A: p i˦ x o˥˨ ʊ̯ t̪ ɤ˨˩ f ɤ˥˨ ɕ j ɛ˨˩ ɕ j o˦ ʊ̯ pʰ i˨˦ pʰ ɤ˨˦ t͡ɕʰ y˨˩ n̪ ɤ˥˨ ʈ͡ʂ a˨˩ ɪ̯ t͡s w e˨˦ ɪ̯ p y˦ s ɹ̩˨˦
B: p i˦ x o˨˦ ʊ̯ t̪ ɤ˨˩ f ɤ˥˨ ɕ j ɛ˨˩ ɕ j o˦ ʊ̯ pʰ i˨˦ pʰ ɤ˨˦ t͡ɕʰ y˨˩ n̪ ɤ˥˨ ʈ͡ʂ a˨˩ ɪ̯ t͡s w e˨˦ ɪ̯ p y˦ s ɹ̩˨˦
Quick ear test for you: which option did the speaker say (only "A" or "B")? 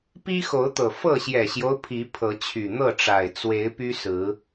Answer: B